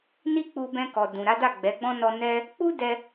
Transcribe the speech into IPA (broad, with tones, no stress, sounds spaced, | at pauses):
n i˦ k͡p u˧ b ɛ̃˧ k ɔ˨ d ũ˨ ɾ a˨˦ d a˦˨ ɡ͡b ɛ˨˦ ɡ͡b ɔ̃˦ n ɔ˧ n ɛ˦ | k͡p u˦ d ɛ˧